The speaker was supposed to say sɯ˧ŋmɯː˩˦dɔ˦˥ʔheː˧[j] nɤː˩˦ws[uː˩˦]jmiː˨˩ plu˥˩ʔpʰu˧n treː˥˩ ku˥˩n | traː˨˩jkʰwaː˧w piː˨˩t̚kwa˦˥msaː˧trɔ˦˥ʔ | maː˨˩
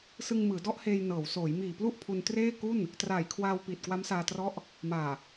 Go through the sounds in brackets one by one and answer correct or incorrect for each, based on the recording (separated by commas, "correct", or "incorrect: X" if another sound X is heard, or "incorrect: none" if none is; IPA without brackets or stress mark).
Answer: correct, incorrect: oː˩˦